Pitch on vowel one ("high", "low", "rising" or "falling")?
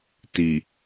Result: low